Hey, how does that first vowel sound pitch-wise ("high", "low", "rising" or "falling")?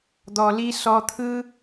low